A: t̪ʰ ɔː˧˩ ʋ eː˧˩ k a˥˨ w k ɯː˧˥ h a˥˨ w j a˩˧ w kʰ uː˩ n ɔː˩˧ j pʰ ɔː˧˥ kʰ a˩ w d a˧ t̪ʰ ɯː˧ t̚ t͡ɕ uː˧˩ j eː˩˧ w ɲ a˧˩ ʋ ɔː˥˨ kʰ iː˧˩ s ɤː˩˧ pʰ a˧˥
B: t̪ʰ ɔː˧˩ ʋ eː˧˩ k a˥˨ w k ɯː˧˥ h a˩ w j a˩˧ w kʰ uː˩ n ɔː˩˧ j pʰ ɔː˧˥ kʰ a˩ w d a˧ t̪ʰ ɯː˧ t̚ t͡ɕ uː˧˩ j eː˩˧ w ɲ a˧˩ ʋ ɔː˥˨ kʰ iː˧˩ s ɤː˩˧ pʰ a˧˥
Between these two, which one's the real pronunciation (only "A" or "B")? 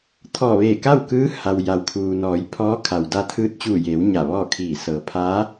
B